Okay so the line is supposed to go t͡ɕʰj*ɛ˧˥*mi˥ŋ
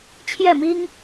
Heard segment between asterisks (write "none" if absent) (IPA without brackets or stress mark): ɛ˥˩